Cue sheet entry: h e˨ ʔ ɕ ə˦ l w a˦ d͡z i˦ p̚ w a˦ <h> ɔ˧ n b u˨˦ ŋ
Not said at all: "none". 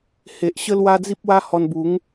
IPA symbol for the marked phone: h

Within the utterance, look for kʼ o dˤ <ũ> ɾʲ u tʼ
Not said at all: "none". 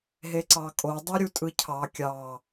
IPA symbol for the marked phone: u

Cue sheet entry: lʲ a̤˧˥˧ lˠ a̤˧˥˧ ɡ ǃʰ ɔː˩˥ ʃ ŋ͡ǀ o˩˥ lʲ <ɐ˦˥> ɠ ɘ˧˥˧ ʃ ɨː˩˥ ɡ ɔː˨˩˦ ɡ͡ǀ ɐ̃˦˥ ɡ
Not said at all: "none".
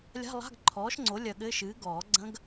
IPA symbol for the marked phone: ɐ˧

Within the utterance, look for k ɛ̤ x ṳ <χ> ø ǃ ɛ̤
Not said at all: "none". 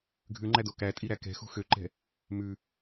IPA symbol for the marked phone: x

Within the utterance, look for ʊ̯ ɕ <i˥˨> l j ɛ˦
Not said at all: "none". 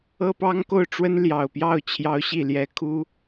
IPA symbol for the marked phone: i˥˨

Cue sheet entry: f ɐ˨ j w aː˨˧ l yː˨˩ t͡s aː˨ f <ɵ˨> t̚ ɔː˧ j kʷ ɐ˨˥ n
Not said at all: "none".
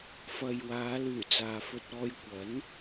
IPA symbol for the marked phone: ɵ˧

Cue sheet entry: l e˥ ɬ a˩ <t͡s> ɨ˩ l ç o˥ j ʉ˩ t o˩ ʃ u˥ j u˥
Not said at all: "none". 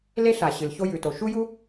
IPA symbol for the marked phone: ɕ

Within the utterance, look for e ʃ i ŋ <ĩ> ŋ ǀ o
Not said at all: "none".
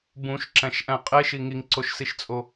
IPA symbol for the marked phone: i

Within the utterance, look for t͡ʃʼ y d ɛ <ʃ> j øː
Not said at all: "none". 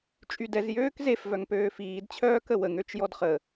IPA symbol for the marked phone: z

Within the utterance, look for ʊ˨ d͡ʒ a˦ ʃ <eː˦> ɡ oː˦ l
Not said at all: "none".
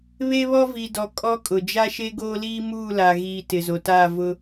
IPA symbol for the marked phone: e˦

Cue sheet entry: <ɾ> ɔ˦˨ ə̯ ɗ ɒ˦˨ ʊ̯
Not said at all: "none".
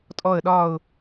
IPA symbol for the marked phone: tʼ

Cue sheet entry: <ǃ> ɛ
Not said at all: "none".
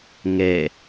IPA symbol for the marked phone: ŋ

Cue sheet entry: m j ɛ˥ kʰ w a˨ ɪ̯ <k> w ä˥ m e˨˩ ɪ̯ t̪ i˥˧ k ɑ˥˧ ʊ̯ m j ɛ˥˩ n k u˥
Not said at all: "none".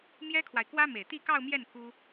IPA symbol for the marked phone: k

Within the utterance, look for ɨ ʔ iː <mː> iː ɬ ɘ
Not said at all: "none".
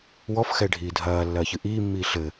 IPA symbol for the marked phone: mː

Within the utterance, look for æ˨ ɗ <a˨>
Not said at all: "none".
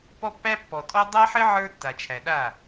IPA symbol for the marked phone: a˦˨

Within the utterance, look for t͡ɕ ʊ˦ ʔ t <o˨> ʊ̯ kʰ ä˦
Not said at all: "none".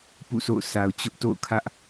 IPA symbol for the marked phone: o̰˦˨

